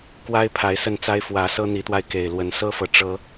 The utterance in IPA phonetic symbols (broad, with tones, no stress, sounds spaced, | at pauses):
k w a˦ ɪ̯ pʰ a˨˦ ɪ̯ s ə˥˨ n t͡s a˦ ɪ̯ f w ä˨˦ s ɤ˦ n̪ i˨˦ t̪ w a˧ ɪ̯ k e˨˩ ɪ̯ l w ə˨˦ n s ɤ˦ f ɤ˨ ʈ͡ʂ ɤ˦